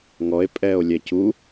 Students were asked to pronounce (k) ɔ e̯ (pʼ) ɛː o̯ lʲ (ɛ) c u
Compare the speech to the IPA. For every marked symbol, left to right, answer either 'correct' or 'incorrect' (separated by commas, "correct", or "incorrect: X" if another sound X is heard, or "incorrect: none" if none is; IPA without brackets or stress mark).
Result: incorrect: ŋ, correct, correct